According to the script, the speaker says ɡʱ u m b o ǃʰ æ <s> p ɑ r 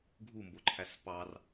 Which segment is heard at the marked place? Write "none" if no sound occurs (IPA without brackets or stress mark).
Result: s